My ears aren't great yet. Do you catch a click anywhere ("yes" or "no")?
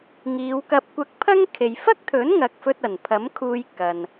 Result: no